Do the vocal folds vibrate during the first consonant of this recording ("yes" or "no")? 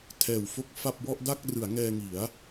no